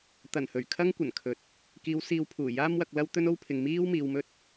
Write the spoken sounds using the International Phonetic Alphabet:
t̪ɐ˨˩nhɵ˨˩ɥkʰɐ˥ŋ kʷɐ˨˩nkʰɵ˨t̚ | kiː˨˧wsiː˨wpʰuː˨˩ jaː˥mwɐ˧k̚lɐ˥w t̪ɵ˥no˥wpʰɪ˨ŋ miː˥w miː˧wmɵ˥t̚

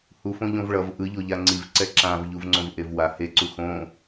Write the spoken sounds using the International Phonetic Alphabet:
hufõʎõv ɭʌv ʔɯʎoʎa ŋ͡ǀivǀɛ ǁãv ʎuvŋ͡ǀõvʔevwa he ǀuxõ

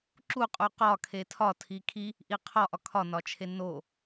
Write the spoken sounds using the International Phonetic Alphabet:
ǁuqʼu qɒ kʰetʰɒ tʰikʰi | ʔiqʰɒʔɒ kʰɒnɒt͡ʃʰe no

